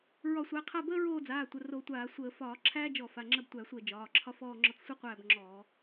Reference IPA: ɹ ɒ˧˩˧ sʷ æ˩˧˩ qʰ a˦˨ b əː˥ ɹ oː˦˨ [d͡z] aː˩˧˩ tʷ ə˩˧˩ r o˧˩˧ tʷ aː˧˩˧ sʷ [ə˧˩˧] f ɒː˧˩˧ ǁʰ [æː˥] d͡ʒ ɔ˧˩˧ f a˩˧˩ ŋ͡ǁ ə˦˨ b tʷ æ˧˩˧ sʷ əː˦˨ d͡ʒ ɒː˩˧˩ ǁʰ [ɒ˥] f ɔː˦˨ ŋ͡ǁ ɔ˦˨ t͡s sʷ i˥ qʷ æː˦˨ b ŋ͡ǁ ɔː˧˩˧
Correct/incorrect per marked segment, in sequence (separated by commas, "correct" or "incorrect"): correct, incorrect, correct, correct